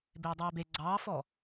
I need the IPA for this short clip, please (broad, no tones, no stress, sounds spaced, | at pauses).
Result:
b eː dˤ eː b e ɡ͡ǀ ɑː f ɔ